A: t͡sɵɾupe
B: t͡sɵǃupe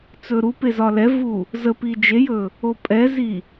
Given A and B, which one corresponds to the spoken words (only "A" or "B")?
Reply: A